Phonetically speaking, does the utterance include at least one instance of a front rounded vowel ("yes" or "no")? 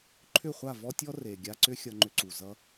yes